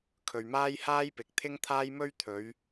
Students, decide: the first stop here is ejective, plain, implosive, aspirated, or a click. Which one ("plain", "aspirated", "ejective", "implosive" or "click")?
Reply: aspirated